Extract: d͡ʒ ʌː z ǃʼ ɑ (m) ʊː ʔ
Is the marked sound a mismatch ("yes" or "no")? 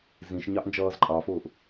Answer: yes